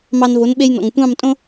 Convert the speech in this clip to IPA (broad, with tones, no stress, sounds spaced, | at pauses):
m ɑ˧ n v o˩˥ n ɓ e˧ j n ɔ̰˩ ŋ tʷ ɑ̃˥˩ m tʼ õ˥